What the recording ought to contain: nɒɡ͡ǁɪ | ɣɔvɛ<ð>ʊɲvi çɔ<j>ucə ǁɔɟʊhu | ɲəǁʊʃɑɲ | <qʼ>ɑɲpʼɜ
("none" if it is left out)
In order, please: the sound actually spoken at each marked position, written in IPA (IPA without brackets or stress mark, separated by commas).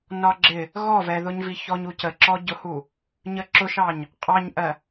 ð, ɲ, qʼ